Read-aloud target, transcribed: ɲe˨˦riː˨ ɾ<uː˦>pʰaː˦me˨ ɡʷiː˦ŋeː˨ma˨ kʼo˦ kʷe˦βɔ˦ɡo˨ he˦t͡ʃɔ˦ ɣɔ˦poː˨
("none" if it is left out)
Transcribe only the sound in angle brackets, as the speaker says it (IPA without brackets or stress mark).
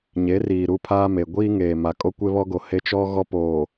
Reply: u˦